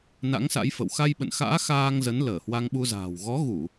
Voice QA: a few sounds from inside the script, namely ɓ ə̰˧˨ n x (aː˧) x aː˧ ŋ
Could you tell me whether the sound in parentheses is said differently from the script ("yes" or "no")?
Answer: yes